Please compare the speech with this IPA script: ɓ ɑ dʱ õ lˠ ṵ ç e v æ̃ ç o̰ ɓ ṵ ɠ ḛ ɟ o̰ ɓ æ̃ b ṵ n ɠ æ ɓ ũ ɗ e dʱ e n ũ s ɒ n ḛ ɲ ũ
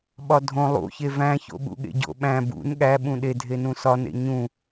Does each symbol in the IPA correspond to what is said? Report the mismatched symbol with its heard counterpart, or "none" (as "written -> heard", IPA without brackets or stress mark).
ɑ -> ɒ